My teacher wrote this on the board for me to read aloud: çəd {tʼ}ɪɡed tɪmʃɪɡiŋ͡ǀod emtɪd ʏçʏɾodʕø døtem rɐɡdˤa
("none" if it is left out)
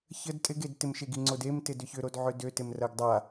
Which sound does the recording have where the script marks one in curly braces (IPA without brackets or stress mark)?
tʼ